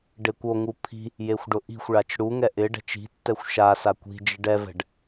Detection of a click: absent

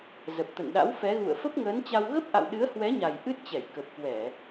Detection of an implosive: present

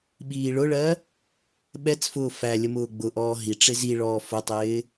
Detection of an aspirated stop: absent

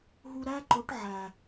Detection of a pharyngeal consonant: present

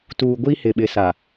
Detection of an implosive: present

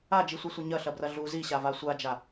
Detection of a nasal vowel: absent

